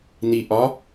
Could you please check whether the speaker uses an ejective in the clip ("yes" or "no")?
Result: no